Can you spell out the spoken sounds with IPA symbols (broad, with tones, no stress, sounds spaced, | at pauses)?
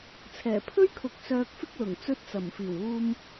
t͡sʰ ɛː˨˩ pʰ ɵ˥ ɥ kʰ ʊ˨ k̚ s œː˧ k̚ f ɪ˥ k̚ l ʊ˨˩ ŋ t͡s ɵ˧ t̚ t͡s ɐ˨˩ m f iː˨˩ w uː˧ m